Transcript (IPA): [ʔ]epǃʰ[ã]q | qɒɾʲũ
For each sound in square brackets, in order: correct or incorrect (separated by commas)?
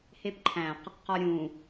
incorrect, incorrect